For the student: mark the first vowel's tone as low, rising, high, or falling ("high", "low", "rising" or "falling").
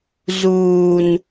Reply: low